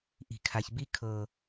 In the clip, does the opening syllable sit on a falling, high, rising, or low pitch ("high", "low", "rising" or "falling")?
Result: low